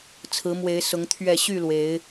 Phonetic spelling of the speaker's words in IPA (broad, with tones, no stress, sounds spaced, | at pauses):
t͡sʰ ɹ̩˨˦ m w e˨˦ ɪ̯ s ʊ˨˦ ŋ t̪ʰ ɥ ɛ˥˨ ɕ y˥˨ l w e˨˦ ɪ̯